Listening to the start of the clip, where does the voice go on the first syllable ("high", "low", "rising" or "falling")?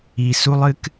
low